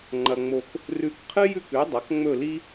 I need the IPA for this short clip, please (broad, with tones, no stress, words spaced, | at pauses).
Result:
ŋ͡ǃɐ˧ ŋ͡mo˧k | rʉ˧kqʰɨ˥jʉ˥˩kʉ˩˥ dˤɐ˩˥k ŋ͡mɵ˥˩li˥